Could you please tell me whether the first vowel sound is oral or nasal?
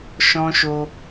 nasal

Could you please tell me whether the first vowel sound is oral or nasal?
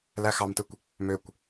oral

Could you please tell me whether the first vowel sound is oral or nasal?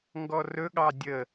oral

